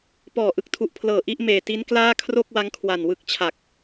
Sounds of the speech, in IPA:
pɔː˨˩ʔɯ˦˥k̚tʰu˨˩ʔpʰlɤː˨˩ ʔi˥˩ʔ meː˨˩ti˦˥n klaː˥˩kʰro˥˩k̚wa˦˥ŋ kʰwa˨˩nwɯ˦˥k̚ t͡ɕʰa˨˩k̚

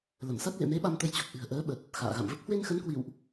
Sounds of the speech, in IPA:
lə˧˩msa˦˥t̚ lḛ˧˨me˨˦ ɓa˧mt̪ə˧j t͡ɕu˨˩k̚ʔɨ̤˨˩ə̯ʔəː˨˦ ɓə˨˩t̚ | xa̰ː˧˨ɣa̰˧˨mvə˦˥p̚ hwe˧nxə˨˦n kwḭ˧˨wʔ

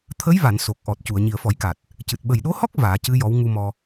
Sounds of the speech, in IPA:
t̪ʰə˧˥jva˨˩˨n so˨˩k̚ʔɔ˨˩t̚cu˨˩˨ə̯ ɲi˨˩ə̯fɔ˨˩˦jka˨˩t̚ | cɨ˨˩t̚ ɓə˨˩jɗo˧˥hɔ˦˥k̚ vaː˨˩˦cɨ˧˥ jɔ˧˥w ŋu˧mɔ˧

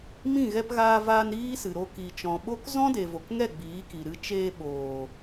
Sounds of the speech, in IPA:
mĩ˦˨ɣɛ˧pɣaː˧vaː˧n ɾiː˦sɨ˨ ɾo˧ ki˨t͡ʃɔ̃˨ɓo˦k zɔ̃˦de˨vo˨kŋɛ˦˨ ɡ͡biː˨˦ki˨ɾɨ˧ t͡ʃeː˧ɓoː˨

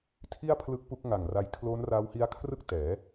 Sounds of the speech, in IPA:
tʰi˥˩a̯pʰlɯ˦˥k̚ pu˦˥k̚ŋa˨˩ŋra˧j kʰlo˦˥nra˦˥whi˦˥a̯kʰrɯ˥˩k̚ tɛː˩˦

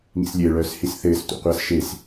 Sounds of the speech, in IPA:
ŋḭslʲɘː ɭœːshisθɘːs tʷa̰qʷasʃes

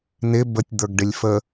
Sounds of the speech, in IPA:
nɪ bətʲ d̪ə˞ɡɖɪlʲfə

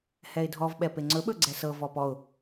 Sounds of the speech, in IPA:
hɛɪ̯dʱɔvɓɛ peŋ͡ǀɵɓɵ ɡ͡ǀɛsɤvɔ pɔʊ̯

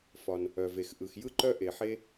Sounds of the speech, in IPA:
fɒ˩n | œ˩ve˩x ʔɯ˩xjɯ˥ǃœ˥ ʔe˩ħe˥

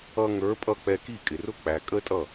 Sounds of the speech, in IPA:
ʌ˧ŋə˞˨˦pʼʌ˧ k͡pɛ˧ki˦˨ kʼɪ˨rʊ˦ k͡pæ˨kʼə˦tʼʌ˦˨

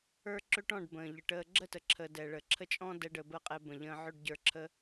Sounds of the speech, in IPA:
ə˞˦ǁø˦ʈɔ̃˦˨ɖ bə̃ː˨ʎə˨ʈəː˧ ɡ͡ǁə˦˨tə˨ǁʰəː˨ dɛ˨ɭə˨ǁʰə˦t͡ʃʼɔ̃˦ dɛ˦ɖəː˧bəː˦qʼɛ˧ bə̃˨ ʎə̃ː˧ʕø˦ɖɟə˞˧ ǁʰə˧

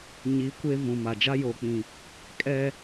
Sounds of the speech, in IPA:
ɲi˨˦ kʷe˦ vũ˨ma˨d͡ʒa˦ jo˨k͡pĩ˨ | kʼɛ˦

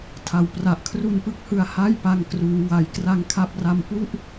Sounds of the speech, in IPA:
tʰa˧wpra˦˥ʔ kʰru˧npɯ˦˥k̚hɯ˧a̯ ha˥˩jpa˧ŋ kruː˦˥wa˧j kra˧ŋkʰa˦˥p̚ra˧m pu˥˩ʔ

